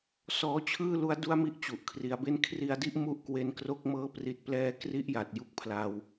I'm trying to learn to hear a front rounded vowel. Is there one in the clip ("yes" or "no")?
no